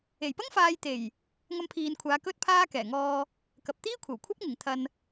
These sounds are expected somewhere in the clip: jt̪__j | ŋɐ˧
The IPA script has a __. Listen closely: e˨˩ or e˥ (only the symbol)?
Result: e˨˩